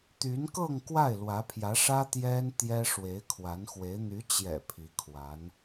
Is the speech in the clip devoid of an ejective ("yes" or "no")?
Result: yes